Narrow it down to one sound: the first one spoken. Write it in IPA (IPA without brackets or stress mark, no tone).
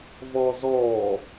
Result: v